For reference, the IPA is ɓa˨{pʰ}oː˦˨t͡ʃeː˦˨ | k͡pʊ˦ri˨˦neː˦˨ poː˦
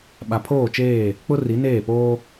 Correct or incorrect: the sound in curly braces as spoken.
correct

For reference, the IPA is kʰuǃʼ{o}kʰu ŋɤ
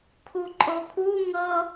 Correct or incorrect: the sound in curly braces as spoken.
correct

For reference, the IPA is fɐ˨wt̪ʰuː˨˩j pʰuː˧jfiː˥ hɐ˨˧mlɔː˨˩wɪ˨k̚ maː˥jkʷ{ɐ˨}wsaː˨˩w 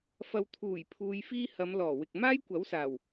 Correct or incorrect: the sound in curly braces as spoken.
incorrect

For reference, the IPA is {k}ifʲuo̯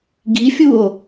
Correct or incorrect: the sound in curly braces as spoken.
incorrect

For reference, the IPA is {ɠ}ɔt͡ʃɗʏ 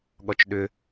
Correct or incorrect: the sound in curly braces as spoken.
correct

